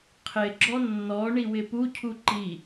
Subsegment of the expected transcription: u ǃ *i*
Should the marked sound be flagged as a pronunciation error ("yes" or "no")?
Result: no